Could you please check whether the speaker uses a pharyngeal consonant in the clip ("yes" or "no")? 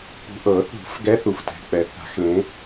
no